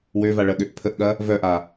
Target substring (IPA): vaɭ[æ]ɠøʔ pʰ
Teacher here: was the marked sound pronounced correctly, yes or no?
no